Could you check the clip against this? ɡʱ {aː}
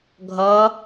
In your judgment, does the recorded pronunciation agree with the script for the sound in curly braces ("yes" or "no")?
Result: no